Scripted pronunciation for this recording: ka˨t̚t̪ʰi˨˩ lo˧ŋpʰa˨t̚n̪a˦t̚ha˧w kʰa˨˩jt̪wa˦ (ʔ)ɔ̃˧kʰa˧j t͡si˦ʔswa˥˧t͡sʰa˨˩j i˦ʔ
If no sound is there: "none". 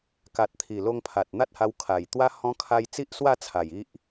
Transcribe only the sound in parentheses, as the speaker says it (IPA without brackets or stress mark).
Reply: h